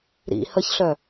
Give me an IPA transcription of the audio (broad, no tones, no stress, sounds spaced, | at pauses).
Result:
ɾ ḭ h ə ç ɬ œ